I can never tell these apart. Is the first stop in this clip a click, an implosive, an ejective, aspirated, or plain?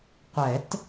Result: plain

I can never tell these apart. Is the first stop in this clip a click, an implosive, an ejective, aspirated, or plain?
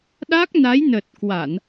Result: implosive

